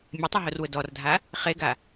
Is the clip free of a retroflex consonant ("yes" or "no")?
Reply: yes